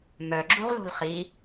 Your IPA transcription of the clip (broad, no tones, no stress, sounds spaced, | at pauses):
m œ ɡ͡ǁ u ʁ l o̤ l χ i